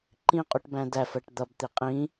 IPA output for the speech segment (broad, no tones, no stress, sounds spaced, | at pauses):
ǃ ĩ qʼ u ʈ b æ̃ d æ f ɜ ʈ d̪ ʌ b t̪ i qʼ ĩ